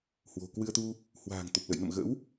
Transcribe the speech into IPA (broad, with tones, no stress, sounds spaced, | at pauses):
h w o̤˨˩ k w ɨ˧ ə̯ t̪ u˧ | h w a̤ː˨˩ ŋ t̪ o˨˩ p̚ l ə̰˧˨ j n ə̰˧˨ m ɣ ə̰˧˥ w